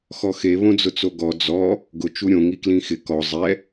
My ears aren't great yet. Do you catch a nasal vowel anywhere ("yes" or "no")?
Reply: yes